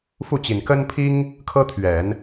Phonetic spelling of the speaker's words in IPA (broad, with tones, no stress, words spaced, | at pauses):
fu˥˩t͡ɕi˨˩n kə˥npʰi˥ŋ | kʰɤ˥t̪ʰɥɛ˨˩˦n